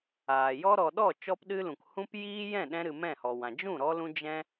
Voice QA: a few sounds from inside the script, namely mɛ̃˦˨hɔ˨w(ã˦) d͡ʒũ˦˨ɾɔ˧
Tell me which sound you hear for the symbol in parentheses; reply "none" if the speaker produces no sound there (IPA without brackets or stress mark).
ã˨